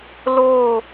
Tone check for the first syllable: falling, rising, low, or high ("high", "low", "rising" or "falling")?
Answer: falling